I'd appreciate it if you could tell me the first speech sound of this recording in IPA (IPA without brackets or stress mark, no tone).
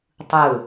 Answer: tˤ